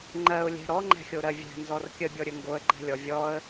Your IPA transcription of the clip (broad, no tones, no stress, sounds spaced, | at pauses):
ŋ͡ǃ ɜ ʊ̯ lʲ æ̤ ɾ ɔ ŋ͡ǃ æ̤ xʲ o ɾ ɜ vʲ æ̤ n z ɔ r kʲ ə bʲ ɔ ɾʲ ɵ ŋ ɡ o ə̯ ɡ͡ǃ æ̤ lʲ ɔ vʲ ɔ ə̯